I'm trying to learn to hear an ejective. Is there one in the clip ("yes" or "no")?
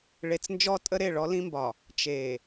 yes